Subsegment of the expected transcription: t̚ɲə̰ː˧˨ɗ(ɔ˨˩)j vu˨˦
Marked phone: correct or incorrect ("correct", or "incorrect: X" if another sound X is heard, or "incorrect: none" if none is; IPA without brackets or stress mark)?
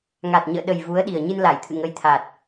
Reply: incorrect: ə˨˩